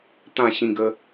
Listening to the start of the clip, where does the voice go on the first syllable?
falling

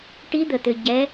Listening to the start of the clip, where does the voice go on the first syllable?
rising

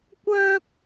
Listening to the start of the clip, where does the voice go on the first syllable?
high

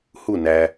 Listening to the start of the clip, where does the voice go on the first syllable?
falling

